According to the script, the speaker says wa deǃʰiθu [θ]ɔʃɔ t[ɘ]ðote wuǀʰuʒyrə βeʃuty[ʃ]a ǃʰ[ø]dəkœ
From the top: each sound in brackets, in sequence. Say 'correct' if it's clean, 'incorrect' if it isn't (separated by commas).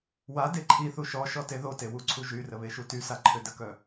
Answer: incorrect, incorrect, incorrect, correct